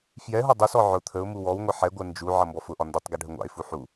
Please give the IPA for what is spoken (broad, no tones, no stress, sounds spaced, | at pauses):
f j ɛ ɦ ɔ dˤ ʊ s ɔ ʕ ʊ t̪ʰ ə ʊ̯ m u w ɔ w ŋʷ ʌ ħ ɛ ɡʷ ɜ n d͡ʒ u ʕ ʌ m b ɔ f ʊ ʔ ɒ n d ə tˤ ɡ ɛ ɖʱ ə ŋʷ ɑ̰ ɪ̯ f u ħ u